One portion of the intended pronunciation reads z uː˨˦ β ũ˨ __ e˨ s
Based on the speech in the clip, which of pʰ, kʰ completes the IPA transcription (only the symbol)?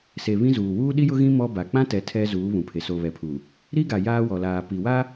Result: pʰ